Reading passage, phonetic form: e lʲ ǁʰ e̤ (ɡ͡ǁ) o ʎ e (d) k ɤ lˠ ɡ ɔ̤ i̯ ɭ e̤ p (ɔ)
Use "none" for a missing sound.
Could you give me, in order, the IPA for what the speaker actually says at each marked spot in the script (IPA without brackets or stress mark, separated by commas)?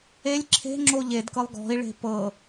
ŋ͡ǁ, d, ɤ